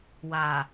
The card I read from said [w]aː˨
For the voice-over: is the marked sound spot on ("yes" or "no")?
yes